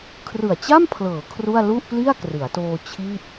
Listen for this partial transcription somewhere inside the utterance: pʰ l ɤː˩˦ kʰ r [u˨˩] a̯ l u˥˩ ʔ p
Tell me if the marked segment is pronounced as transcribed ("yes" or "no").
no